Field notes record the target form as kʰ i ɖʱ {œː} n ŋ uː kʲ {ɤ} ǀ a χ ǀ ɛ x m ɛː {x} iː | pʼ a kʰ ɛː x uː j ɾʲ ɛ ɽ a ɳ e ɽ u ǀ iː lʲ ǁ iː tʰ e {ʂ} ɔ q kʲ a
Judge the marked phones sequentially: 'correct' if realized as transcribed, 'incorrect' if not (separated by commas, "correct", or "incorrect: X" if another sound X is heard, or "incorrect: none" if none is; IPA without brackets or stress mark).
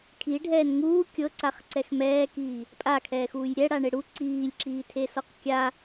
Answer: incorrect: ɛː, correct, incorrect: k, incorrect: s